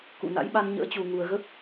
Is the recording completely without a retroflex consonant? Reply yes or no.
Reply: yes